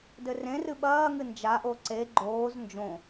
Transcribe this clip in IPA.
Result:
dɘrẽrɨ ɓɐːŋɨ nd͡ʒaʔo ǀe ɡ͡ǃoːz nd͡ʒõ

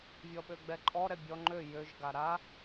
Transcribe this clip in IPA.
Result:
vʲɔɓøɡ͡bɛǃʼɔ ɾɛbʲɔ ŋ͡ǃø jøʒ ɡaɾa

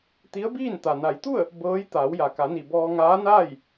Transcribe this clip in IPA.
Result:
t̪i˧˥ə̯biː˥˨nt̪a˩ na˩˧jt̪u˥˨ə̯ | bɤː˧˥j t̪aː˩˧wja˩ka˩˧ni˩ bɔː˧ŋaː˧˥naː˥˨j

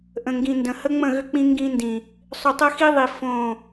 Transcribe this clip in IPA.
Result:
ʔə̃˨ŋɡĩ˨ndə̃˨ hə˦ŋ͡mə̃˦˨ɣʏ˦ k͡pĩ˦ŋɡĩ˦ndĩ˨ | sˤʏ˨tˤə˦xi˦ðˤi˨ fõ˦˨

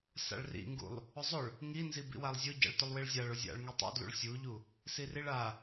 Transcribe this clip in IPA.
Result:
sa̰ɭrḭŋɡṵlˠ | ʊzˤʊɭ | ŋinzi bḭwalˠzʲʊ ɟa̰ɭtʊlˠwiɭzʲaɭ ʊzʲa̰ɭ ŋitˤṵdlṵɭ sʲuʎu | siriɭa

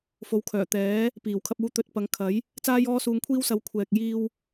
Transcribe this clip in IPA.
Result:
fo˨˧wkʰœː˨˩t̪ɛː˨˥ | piː˨˩wkʰɐ˧p̚uː˧ t̪ɵ˧t̚pɐ˨˧ŋ kʰɐ˨˥j | t͡saː˥jɔː˥suː˧ŋkʷʰiː˥w sɐ˨˧w kʷʰɛː˨k̚jiː˧w

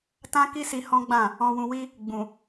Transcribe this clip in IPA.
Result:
tã˦ki˦si˧ hɔ̃˦ɡ͡bã˦˨ | ɔ̃˧wũ˧wi˦ | ɡ͡bũ˨

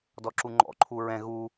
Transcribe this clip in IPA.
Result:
dɔǁuŋ͡ǃɔ̰ǃʰu ɹɛ̃ ɣu

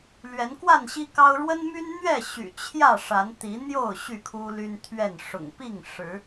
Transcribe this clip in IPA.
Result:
lɥɛ˨˦nkwa˥˨nɕi˦kɑ˦ʊ̯ ɻwə˦nmy˦nn̪ɥɛ˥˨ ɕy̰˨˩t͡ɕʰjä˥˨ ʂa˨˦n t̪i˨˦n̪jo˥˨ʊ̯ ɕy˥˨kʰu˦ly˦nt̪ʰɥɛ˥˨n ʂʊ̰˨˩ŋpi˥˨ŋ ʂɻ̩˨˦

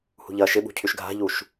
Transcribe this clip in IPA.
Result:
hṳʎɐːʃɪɓṳ cʰyʃɡʱa̤ʎuʃ

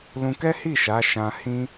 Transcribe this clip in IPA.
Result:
lũ˧kɛ˦hi˦˨ ʃa˨˦ ʃã˧ hĩ˦

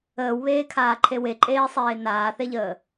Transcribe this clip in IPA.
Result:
əːwβeːkʰaːǃʰe weǃʼeːsˤeː naːθeʎəː

